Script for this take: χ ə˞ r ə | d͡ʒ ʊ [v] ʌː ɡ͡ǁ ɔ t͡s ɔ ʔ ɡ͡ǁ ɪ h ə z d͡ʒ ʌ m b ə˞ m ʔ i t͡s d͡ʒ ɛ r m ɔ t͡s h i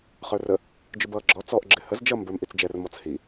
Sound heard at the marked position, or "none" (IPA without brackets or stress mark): b